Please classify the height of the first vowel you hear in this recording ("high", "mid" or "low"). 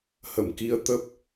mid